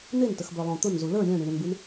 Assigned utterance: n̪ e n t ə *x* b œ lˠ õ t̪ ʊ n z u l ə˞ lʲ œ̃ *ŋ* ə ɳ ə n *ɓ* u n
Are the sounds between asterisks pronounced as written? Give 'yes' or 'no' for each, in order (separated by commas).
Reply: yes, no, no